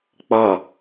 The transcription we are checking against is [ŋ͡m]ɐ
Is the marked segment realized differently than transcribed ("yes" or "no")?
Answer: yes